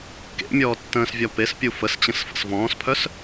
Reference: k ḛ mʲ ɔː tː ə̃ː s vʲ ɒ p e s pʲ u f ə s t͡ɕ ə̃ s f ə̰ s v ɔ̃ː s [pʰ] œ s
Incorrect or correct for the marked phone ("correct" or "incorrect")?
correct